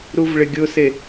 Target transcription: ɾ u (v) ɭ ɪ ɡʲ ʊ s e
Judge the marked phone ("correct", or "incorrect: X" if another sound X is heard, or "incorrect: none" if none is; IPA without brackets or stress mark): correct